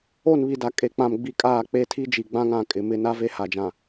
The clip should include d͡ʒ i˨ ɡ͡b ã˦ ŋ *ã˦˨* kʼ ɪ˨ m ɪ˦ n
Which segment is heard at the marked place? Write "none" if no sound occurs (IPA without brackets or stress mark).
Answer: ã˦˨